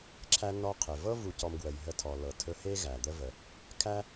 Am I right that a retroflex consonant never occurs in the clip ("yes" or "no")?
yes